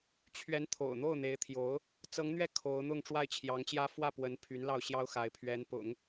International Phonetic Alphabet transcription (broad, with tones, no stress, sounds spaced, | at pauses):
t͡ɕʰ ɥ ɛ˧˥ n t̪ʰ o̰˨˩ ʊ̯ n̪ o˥˩ ʊ̯ n̪ e˧˥ ɪ̯ t̪ʰ j o˧˥ ʊ̯ | t͡s ɤ˧˥ ŋ n̪ ɥ ɛ˥˩ kʰ o˧˥ ʊ̯ n̪ ʊ˥˧ ŋ ʈ͡ʂ w a˥˩ ɪ̯ t͡ɕʰ j ɑ˧˥ ŋ t͡ɕ j ä˥ f w ä˥˩ p w ə˧˥ n pʰ y˧˥ n l ɑ˥˩ ʊ̯ ɕ j ɑ˥ ʊ̯ x a˧˥ ɪ̯ pʰ ɥ ɛ˧˥ n p ʊ̰˨˩˦ ŋ